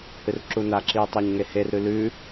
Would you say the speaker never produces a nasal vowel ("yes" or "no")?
yes